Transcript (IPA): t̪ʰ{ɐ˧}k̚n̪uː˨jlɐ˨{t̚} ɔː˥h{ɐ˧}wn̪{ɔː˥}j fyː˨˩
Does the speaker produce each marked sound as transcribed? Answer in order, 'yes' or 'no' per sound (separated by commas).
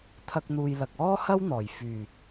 yes, no, no, no